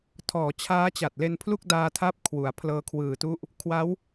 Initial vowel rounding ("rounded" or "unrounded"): rounded